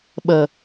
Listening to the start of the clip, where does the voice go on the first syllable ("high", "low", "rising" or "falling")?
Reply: low